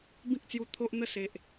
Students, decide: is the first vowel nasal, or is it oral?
nasal